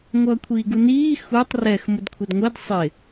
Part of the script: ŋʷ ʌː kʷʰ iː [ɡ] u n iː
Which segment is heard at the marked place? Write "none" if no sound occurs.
ɡ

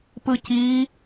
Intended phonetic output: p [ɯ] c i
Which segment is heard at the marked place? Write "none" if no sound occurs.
ɯ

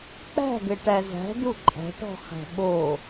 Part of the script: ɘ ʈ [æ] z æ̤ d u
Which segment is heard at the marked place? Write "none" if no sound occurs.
æ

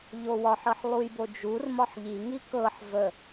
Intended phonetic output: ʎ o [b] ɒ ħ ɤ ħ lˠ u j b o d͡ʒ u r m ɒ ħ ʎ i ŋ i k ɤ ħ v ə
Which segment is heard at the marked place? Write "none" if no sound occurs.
w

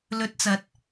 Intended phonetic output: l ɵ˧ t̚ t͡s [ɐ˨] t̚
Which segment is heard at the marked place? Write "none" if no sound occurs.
ɐ˨˥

